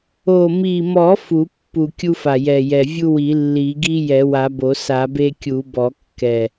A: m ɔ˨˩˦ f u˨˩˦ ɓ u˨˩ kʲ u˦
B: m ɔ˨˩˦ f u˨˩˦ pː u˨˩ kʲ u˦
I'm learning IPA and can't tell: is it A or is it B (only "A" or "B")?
B